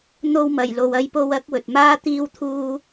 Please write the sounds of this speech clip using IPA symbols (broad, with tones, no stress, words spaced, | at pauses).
n̪o˧wmɐ˨˩j lo˨wɐ˧jpo˧w ɐ˨˥k̚wɵ˨t̚maː˥ t̪iː˥wt̪ʰuː˥